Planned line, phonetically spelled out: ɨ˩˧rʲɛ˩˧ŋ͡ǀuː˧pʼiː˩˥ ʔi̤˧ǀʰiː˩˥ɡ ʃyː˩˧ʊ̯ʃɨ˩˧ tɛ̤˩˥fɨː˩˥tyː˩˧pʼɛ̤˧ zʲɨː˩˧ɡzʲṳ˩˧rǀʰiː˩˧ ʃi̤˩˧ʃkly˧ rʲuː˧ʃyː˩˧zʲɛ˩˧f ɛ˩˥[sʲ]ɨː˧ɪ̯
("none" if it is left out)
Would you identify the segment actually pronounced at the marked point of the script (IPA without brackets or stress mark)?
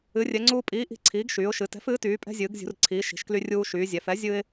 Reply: zʲ